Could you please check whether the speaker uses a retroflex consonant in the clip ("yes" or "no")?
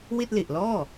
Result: no